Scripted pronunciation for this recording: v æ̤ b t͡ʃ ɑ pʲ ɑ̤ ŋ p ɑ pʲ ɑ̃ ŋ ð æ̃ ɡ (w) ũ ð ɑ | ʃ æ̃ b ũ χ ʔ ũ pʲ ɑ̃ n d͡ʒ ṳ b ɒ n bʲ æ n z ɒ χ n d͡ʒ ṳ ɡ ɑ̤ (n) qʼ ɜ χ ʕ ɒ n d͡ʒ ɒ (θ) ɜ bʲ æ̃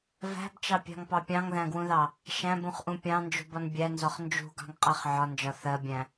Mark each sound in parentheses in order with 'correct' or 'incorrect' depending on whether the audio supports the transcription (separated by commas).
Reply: correct, incorrect, correct